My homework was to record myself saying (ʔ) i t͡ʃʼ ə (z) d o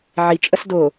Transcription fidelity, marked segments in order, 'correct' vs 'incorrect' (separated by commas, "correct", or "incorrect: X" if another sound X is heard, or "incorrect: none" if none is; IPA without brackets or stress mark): incorrect: ʕ, incorrect: s